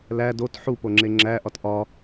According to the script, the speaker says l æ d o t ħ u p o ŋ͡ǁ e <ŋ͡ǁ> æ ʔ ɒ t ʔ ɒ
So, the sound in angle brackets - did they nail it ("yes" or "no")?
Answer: yes